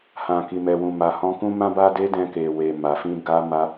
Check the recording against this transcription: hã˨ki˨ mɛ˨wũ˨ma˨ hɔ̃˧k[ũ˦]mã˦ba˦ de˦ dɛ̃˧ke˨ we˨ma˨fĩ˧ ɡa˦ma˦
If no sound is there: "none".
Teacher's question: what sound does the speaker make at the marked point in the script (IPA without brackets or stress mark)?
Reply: ũ˦